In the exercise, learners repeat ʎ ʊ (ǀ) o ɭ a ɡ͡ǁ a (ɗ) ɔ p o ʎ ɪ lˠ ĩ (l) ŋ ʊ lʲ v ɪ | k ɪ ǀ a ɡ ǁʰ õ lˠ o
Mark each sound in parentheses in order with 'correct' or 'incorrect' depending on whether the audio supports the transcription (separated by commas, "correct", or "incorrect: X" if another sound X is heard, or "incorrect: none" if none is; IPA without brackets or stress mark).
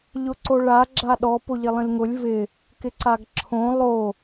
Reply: correct, correct, correct